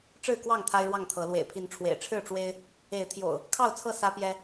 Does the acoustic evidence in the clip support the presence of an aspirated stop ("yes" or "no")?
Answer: yes